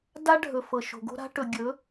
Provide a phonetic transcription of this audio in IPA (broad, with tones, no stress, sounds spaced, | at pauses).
d a˦ ɖʱ ɵ˨ f ɤ˨ ʃ o̤˨ ɡ o̤˦ ɾ a̤˦ ʈ ɵ˨ ɡʲ ɵ˨˦